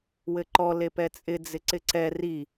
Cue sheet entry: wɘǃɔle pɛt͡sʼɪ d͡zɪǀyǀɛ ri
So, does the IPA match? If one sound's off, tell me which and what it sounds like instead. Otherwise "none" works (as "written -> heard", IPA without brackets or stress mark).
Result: y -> ɪ